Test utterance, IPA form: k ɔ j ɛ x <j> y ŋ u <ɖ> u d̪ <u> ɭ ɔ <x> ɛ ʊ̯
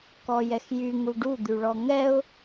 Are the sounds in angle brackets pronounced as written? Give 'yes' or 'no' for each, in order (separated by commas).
yes, yes, no, no